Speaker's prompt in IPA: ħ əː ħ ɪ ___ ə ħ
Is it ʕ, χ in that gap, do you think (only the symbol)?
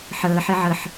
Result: ʕ